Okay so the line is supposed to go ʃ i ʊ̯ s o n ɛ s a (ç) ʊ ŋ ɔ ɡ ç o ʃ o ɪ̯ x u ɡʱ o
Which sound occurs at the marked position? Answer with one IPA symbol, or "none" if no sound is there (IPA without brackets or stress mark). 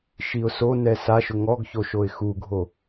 ʃ